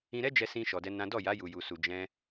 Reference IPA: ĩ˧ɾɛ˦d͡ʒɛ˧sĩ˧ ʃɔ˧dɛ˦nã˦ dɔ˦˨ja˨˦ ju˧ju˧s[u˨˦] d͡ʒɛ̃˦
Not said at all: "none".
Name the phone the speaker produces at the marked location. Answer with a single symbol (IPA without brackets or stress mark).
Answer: u˧